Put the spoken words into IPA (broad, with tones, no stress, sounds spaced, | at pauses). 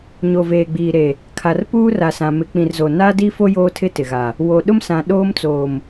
ɲ o˨ v eː˨ ɡ͡b iː˨ ɾ e˨ | kʰ a˨ r p uː˦ r a˨ s ã˨ m ɪ˨ k͡p ĩ˨ r z o˨ n aː˦ d i˦ f o˦ j oː˦ tʰ ɪ˦ t ɪ˨ ɣ a˨ | w o˨ ɗ ʊ˦ m s ã˨ ɗ oː˦ m t͡s oː˨ m